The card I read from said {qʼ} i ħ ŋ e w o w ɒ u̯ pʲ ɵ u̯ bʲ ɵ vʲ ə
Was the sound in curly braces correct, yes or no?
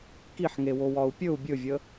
no